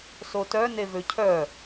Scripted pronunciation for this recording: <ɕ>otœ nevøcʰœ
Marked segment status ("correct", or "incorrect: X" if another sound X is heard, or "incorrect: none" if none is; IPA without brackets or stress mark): incorrect: s